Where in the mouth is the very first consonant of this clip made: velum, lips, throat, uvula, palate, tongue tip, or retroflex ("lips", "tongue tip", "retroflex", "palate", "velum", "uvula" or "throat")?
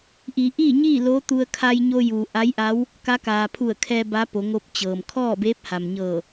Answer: throat